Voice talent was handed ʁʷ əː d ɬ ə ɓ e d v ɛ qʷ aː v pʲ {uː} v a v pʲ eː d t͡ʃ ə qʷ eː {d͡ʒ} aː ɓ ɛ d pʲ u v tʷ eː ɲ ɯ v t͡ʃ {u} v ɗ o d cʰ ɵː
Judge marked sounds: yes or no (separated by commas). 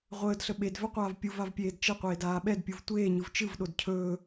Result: no, no, no